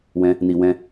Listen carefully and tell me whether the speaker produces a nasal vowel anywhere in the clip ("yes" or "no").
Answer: yes